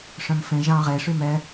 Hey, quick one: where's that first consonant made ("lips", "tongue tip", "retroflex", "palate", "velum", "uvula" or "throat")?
retroflex